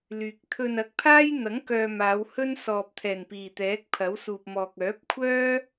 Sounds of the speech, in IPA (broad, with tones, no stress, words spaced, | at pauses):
lyː˨k̚ t̪ʰɵ˧n ɐ˨˥k̚pʰaː˥jn̪ɐ˨˥ŋkœː˨ maː˨˧whɵ˥nsɔː˨p̚ t̪ʰɛː˨˩npiː˨˩t̪ɛː˨˥k̚ pʰɐ˨˥wsuː˨p̚mɔː˨k̚ œː˨˥p̚kʷʰœː˥